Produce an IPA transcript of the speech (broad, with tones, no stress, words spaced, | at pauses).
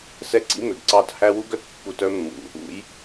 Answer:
sɛ˦ǀḭ˦mø˨ɡǀɑ˦˨t hæ˦wu˦ɡœ˨t pːu˦t œ˦mːṵ˨ | ṵ˨˦j